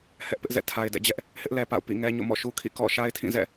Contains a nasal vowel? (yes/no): yes